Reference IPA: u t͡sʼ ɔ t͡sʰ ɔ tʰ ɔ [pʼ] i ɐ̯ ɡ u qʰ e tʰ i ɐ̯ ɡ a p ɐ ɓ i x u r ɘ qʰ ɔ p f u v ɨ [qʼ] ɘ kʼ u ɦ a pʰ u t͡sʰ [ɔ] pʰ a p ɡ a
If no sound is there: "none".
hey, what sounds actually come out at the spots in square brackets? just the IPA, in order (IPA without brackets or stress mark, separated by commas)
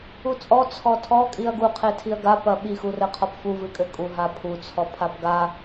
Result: kʼ, kʼ, ɔ